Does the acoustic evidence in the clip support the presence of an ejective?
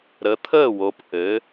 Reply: no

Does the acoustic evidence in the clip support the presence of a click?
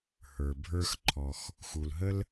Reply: yes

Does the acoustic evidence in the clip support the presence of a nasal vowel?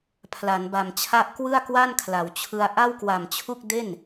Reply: no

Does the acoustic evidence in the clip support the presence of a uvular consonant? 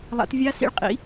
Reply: yes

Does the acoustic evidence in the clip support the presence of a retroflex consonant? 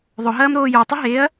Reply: no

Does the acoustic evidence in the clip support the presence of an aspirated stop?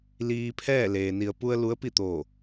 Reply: yes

